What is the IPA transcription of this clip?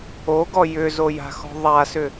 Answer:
oɡɔ jʏzoja̤xɔ̤ ðˤasʏ

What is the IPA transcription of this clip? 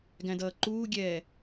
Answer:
ɡæ̃dʌːǃuːɡʲɛː

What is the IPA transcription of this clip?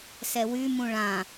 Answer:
sɛwy mũɭã

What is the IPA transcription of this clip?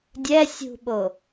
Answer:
dʲɛ sʲṳɓo

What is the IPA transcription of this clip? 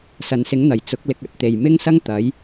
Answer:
sɐ˨nsɪ˨˥ŋn̪ɐ˨˩j t͡sʊ˨˥k̚ lɪ˧k̚ɐ˧t̚t̪e˨j mɪ˥ŋsɐ˥ŋ t̪ɐ˨˧j

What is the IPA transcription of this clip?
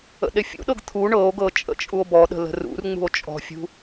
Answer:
ə̰ɗefʲṵɗɤɡ t̪ʰu ɳɤo̯ɡɤ t͡ʃʼə̰t͡ʃʼuo̯bɔɗə̤ lə̤rṵrŋ͡mṳo̯ t͡ʃʼɔ̤fʲṳ

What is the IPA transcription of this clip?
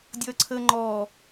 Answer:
dʲʌːǀʰəːŋ͡ǃɔː

